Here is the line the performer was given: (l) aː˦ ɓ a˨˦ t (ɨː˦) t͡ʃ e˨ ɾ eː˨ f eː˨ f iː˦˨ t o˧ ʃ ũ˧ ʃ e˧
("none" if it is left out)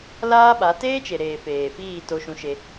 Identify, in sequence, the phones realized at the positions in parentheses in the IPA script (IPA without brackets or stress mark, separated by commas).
l, eː˦